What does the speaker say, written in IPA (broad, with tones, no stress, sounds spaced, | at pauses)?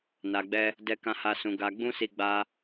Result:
n a˨ ɡ͡b ɛ˧ | d ɛ˧ k ã˧ h a˧ s ũ˨ ɡ a˧ ɡ͡b ũ˦ s i˧ ɡ͡b a˦